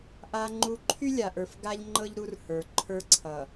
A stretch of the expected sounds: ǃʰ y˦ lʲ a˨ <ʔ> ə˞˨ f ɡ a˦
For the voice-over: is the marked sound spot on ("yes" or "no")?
yes